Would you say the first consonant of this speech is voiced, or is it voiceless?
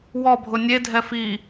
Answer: voiced